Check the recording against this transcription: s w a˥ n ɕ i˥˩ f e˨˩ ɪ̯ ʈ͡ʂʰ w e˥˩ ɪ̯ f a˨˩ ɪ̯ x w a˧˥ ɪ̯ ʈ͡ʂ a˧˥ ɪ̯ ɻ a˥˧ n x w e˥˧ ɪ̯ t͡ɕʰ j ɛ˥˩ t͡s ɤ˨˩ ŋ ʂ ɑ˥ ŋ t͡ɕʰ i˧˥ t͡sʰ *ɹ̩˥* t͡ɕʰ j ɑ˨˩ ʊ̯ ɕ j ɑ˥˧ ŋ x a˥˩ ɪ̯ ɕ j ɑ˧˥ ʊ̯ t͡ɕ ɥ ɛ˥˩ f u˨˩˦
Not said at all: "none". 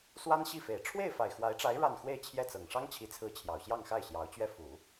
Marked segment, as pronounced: ɹ̩˧˥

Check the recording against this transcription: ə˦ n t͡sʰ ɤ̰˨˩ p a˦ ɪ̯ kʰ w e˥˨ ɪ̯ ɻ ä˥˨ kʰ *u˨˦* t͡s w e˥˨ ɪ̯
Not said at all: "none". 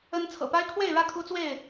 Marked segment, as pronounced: u˦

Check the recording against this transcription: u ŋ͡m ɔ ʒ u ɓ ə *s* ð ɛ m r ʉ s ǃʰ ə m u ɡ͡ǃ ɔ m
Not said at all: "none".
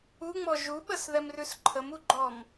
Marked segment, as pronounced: s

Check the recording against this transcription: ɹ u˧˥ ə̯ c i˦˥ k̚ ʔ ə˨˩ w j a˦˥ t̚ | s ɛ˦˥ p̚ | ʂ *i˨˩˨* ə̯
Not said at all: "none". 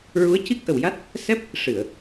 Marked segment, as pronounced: ɨ˨˩˨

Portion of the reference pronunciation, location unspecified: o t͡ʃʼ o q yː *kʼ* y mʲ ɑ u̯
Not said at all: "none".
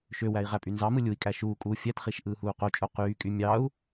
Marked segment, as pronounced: kʼ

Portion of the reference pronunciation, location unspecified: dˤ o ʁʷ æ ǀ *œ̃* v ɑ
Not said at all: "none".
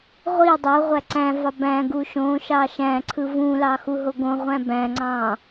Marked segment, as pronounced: æ̃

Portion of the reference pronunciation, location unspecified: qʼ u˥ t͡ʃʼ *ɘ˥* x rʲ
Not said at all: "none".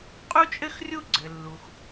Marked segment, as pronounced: ɘ˥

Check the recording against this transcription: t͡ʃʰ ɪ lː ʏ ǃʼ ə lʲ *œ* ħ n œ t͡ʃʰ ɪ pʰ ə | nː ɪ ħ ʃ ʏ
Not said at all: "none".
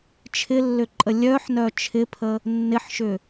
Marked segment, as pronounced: œ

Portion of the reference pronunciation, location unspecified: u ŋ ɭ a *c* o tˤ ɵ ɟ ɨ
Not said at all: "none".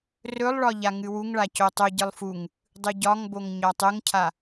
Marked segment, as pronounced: c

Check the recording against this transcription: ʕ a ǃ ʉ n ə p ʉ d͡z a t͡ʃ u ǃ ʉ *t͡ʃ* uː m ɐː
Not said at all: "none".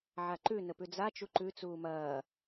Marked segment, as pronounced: t͡s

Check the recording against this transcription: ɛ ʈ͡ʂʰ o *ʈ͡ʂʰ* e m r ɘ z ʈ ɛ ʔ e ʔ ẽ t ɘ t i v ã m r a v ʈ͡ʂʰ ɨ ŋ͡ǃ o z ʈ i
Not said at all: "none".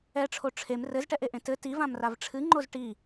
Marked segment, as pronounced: ʈ͡ʂʰ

